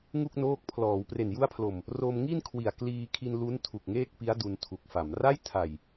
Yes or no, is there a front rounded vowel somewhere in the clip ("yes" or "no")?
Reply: no